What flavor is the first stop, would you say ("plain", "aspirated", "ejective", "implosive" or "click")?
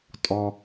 ejective